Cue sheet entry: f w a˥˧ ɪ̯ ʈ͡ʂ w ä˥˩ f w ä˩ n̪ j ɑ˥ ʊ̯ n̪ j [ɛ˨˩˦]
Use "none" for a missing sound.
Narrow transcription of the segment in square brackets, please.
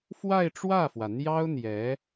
ɛ˧˥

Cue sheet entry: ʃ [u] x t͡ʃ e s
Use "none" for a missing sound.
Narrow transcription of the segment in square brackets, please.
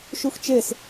u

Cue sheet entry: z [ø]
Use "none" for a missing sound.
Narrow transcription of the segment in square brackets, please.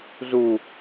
u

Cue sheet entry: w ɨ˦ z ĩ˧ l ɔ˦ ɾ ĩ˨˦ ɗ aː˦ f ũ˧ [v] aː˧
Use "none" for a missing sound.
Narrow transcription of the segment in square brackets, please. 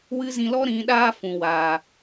w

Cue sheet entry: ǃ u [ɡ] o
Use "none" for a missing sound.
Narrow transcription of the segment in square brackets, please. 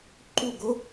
ɡ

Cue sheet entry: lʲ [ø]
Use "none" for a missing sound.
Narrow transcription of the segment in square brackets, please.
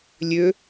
ø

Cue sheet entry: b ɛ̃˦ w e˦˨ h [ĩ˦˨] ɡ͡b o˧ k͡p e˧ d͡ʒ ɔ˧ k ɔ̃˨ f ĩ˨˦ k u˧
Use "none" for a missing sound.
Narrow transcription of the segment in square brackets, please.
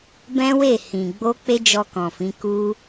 ĩ˨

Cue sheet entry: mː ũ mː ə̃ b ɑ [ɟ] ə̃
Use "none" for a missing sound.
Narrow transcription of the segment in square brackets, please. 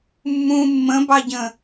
ɟ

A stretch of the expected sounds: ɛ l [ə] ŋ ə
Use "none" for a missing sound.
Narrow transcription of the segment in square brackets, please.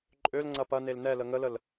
ə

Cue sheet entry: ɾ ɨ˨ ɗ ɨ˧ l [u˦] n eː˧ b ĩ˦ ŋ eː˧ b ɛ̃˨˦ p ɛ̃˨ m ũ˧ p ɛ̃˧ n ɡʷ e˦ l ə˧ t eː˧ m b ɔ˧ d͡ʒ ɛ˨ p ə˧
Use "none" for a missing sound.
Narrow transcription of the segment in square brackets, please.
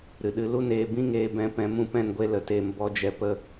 u˦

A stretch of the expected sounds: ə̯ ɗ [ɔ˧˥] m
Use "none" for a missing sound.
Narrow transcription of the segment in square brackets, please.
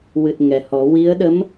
ə˧˥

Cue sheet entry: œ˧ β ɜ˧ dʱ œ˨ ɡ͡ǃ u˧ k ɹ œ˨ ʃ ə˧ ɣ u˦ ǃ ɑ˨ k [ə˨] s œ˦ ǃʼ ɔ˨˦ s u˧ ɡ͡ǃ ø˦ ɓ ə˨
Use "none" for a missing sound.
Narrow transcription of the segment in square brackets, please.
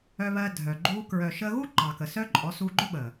ə˨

